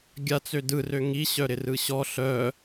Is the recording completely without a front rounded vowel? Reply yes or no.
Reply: no